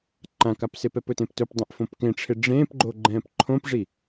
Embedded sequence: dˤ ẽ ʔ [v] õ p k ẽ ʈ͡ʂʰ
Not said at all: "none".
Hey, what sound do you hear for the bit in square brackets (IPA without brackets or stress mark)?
f